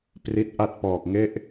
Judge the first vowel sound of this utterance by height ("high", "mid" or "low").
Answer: high